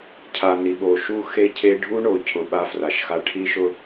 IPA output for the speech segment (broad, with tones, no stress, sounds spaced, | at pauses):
cʰ a˨ n i˨ ɓ o˨ ʃ u˦ x e˦ cʰ e˦ ɖʱ u˦ ɳ o˨ cʰ ʊ˨ ɓ a˦ f r a˨ ʃ x a˦ ʈʰ i˦ ʃ ʊ˦